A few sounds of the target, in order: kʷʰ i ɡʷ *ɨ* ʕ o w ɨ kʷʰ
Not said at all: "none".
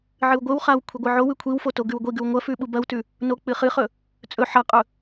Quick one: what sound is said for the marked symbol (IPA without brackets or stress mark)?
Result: ɨ